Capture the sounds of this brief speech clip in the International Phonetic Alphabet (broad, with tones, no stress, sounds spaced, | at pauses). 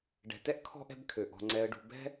ɖ ɛ̤˨ t ɛ˥ ʔ kʰ ɔ̤˥ ʔ ɛ̤˦ b kʰ ø˩ ʔ ɔ̤˨ ŋ͡ǀ ɛ˨ ə̯ ɖ ṳ˨ b ɛ̤˥